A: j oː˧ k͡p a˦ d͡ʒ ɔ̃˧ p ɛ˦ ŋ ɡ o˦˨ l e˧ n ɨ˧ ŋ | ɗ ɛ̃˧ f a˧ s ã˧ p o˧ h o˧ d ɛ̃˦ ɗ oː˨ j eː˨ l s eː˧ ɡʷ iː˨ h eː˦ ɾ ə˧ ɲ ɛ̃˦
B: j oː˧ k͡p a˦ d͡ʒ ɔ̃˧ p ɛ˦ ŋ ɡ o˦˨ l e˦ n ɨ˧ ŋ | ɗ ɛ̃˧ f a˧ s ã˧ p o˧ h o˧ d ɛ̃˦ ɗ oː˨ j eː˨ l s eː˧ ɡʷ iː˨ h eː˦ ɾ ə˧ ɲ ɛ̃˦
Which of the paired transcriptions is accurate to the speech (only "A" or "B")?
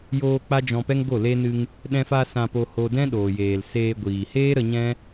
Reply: A